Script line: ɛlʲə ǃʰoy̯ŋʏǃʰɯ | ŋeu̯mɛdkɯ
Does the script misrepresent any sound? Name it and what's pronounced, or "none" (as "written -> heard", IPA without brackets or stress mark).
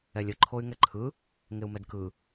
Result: ʏ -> ɛ